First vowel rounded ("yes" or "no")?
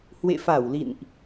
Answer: no